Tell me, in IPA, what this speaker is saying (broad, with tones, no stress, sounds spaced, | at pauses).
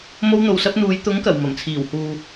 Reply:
m o˧ w n̪ o˨ w s ɐ˧ p̚ n̪ uː˨˧ j t̪ ʊ˨˥ ŋ k ɐ˨˩ w m ɐ˨˩ m t͡sʰ iː˨˩ w h uː˨